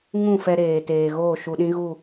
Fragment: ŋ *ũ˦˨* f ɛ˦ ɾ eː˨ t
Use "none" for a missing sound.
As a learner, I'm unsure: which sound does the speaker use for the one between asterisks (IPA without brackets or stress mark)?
ũ˦˨